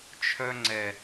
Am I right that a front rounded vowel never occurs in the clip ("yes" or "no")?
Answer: no